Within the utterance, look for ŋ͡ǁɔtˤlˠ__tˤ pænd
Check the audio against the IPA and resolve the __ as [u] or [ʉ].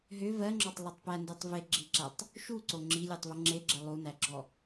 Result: u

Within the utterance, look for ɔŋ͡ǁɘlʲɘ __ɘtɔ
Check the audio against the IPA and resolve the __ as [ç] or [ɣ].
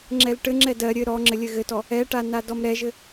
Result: ɣ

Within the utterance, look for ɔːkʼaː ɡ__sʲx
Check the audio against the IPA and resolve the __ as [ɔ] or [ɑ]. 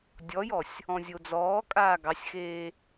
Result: ɑ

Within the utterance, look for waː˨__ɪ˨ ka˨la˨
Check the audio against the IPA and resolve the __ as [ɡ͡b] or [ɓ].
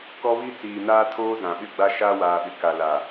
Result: ɓ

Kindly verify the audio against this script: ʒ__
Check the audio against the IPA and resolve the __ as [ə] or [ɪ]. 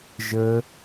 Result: ə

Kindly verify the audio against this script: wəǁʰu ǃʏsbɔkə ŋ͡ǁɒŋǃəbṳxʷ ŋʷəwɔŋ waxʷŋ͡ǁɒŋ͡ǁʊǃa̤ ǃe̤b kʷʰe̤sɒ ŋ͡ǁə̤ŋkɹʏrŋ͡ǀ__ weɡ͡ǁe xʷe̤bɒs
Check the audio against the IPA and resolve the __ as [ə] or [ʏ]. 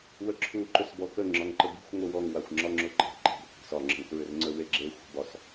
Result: ə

